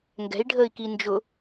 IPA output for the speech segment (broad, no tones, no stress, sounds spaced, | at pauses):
ŋ ɡ ɛ̤ i̯ ɖʱ əː i̯ k i n d͡ʒ ʊ